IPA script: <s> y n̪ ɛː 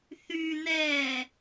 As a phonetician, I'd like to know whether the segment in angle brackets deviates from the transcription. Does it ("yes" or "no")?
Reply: yes